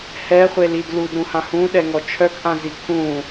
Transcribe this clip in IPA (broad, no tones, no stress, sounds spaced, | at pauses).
h ɛ χʷ e l i d l u d ɾ ũ h ã h ũ ɗ ɛ ŋ ɔ t͡ʃʰ œ k ʔ ã z i kʰ ũ